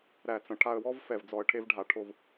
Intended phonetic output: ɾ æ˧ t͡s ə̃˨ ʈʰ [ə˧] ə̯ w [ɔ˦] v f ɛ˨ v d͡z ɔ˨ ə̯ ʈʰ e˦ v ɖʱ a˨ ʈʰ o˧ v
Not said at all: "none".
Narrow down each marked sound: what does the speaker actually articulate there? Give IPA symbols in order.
a˧, ɔ˦

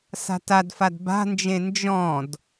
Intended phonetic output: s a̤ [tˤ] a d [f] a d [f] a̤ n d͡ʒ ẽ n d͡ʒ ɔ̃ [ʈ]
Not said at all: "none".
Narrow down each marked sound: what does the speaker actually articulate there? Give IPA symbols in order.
t, f, b, d

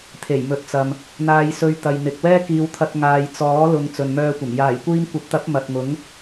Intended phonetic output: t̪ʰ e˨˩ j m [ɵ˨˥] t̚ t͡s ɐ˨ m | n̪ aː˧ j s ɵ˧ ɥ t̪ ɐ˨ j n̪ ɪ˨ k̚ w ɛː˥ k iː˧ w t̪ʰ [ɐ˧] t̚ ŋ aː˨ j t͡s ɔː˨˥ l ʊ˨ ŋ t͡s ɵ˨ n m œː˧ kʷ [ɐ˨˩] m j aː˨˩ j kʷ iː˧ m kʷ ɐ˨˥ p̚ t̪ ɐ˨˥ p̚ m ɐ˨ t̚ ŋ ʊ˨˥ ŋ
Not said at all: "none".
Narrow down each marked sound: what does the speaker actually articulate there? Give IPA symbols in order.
ɵ˨, ɐ˧, ɐ˨˩

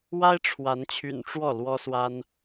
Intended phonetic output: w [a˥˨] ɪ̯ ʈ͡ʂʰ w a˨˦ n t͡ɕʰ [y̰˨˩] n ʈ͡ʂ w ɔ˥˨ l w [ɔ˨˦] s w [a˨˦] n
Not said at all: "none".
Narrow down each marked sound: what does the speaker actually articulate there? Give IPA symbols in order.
a˦, y̰˨˩, ɔ˦, a˦

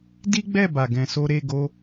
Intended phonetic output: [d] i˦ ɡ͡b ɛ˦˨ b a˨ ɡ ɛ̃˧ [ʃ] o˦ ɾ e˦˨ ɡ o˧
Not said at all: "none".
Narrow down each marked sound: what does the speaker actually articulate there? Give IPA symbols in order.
d, s

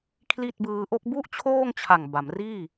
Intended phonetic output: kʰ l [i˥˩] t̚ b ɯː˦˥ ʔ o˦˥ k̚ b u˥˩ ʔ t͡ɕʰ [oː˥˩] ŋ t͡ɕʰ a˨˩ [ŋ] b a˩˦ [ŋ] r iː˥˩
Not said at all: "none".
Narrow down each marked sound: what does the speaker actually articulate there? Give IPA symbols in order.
i˥˩, oː˥˩, ŋ, m

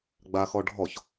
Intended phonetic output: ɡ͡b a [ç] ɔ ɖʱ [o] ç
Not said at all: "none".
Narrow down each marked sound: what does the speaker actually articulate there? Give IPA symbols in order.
x, ɔ

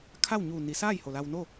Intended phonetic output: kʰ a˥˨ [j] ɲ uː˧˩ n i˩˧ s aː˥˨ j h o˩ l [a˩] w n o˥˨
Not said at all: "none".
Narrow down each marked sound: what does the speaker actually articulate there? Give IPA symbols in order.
w, a˧

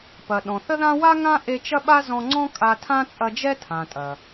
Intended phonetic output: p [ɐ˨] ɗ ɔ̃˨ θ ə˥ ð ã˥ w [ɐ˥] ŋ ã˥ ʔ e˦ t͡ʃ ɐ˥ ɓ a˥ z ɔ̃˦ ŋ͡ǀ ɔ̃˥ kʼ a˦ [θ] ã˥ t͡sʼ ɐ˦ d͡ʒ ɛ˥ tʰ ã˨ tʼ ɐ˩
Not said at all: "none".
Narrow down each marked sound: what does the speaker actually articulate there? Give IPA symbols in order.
ɐ˨, a˥, tʰ

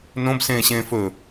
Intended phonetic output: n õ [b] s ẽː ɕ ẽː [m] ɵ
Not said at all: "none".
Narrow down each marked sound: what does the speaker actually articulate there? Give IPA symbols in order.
b, f

